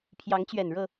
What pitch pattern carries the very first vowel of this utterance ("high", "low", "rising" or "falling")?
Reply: rising